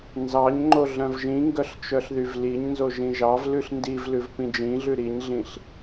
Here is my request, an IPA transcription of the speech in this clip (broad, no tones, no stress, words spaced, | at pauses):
nzɑɲŋ͡ǃo ɮœ̃vʒĩŋɡœɬ t͡ʃœɬðyvliɲnzo ʒĩʒɑvlʉɬ ndivlʉv pĩd͡ʒĩɮʉ ɾiɲɮĩɬ